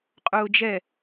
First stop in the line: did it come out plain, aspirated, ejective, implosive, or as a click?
ejective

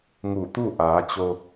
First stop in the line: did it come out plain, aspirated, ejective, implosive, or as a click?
plain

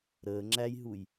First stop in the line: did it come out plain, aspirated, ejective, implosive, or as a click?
click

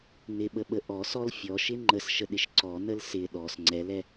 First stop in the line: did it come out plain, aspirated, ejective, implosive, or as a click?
implosive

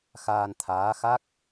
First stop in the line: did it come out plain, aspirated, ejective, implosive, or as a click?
aspirated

